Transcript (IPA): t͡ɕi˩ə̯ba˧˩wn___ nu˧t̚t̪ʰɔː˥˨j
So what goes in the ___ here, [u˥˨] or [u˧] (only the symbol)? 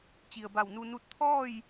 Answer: u˧